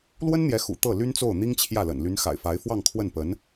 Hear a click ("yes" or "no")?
no